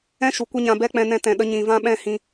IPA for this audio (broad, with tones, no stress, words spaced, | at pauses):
ɛ̃˦ʃu˨ kʷə˦ɲã˧bɛ˦ k͡pɛ̃˧nɛ̃˧tɛ̃˨ɗə˧ ɲĩ˨vã˦ɓɛ̃˦hĩ˧